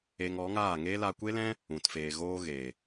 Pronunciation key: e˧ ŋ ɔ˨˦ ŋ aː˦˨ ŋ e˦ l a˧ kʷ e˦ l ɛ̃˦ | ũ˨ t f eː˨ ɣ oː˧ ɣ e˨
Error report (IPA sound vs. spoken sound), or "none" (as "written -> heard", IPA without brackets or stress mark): none